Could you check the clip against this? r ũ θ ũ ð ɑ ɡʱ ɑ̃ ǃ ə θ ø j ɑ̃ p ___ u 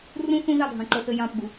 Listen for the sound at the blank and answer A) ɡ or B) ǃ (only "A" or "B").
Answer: A